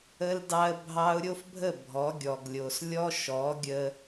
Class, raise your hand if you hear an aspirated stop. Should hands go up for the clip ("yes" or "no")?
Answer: no